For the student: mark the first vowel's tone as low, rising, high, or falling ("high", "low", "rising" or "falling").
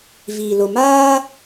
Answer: low